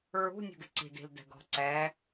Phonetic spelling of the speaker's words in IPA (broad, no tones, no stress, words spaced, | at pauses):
ɹṳ nʲṳɡɪǀi̤di̤l dɛ̤ɡɔ̤ǀɛ